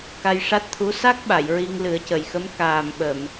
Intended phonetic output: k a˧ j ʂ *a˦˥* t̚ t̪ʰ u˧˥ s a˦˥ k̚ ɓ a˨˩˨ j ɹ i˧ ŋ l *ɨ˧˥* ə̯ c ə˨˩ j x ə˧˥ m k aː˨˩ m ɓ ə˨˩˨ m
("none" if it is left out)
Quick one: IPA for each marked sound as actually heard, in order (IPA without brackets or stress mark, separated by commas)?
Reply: a˦˥, ɨ˨˩˦